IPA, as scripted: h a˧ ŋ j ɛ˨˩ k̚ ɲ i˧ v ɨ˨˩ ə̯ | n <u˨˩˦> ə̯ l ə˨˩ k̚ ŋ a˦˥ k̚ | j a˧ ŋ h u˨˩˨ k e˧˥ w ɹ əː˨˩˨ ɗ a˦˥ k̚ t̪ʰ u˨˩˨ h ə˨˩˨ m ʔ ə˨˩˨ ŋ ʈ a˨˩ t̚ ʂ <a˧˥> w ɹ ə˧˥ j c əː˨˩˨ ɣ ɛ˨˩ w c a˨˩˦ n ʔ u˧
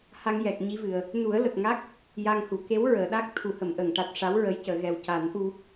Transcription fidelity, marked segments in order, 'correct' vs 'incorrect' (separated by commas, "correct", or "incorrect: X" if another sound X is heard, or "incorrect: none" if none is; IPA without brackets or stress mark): correct, correct